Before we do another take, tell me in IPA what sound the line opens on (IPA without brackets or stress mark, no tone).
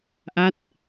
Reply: ʔ